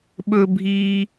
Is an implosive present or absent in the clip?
present